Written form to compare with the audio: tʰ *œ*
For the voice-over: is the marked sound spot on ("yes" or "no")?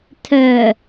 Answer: yes